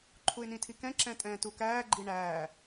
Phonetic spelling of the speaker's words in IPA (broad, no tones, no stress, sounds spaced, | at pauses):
ǃʰ u ɪ̯ n ĩ tʰ i k ɛ̃ ǁ ɛ̃ tʼ ɛ̃ː t u k æː ɡ͡ǃ i ɳ æː